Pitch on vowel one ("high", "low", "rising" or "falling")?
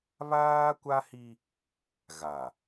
high